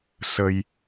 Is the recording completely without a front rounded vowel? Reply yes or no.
yes